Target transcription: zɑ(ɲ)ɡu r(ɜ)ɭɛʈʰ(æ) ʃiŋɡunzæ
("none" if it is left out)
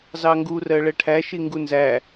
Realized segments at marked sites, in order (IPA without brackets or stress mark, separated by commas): ŋ, ɜ, æ